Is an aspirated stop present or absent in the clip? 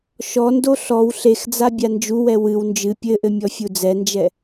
absent